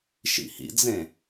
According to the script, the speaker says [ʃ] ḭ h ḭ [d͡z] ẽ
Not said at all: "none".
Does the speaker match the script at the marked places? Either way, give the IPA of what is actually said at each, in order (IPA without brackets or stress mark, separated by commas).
ʃ, d͡z